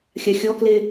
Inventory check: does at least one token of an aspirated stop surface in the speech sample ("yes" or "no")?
no